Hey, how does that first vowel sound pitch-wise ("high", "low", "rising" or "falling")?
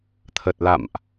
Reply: low